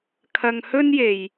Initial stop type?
aspirated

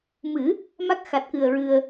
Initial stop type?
plain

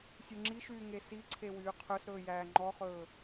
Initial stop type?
click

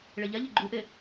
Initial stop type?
click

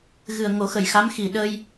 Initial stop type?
implosive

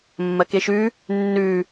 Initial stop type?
plain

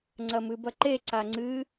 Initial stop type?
click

